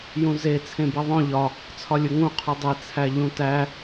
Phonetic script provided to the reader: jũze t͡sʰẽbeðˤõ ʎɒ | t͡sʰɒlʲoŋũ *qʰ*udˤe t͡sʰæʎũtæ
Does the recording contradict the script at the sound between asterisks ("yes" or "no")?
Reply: no